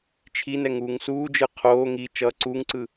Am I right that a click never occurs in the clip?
no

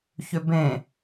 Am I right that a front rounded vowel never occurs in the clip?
no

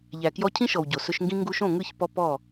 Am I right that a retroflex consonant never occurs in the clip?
yes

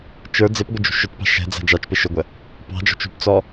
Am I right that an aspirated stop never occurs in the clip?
yes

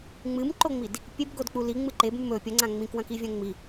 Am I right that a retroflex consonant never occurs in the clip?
yes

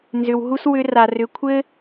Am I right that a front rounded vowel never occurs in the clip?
no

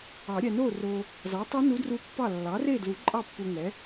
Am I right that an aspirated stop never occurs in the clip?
yes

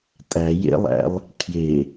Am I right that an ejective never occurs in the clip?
no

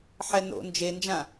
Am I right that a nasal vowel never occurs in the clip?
no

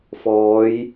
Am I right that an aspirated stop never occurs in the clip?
yes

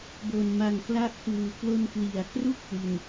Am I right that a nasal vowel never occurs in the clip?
yes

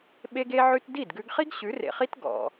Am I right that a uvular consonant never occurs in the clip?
no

